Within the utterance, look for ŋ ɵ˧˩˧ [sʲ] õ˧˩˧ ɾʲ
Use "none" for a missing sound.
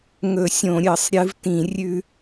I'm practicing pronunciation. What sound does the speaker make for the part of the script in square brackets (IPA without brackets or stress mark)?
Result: sʲ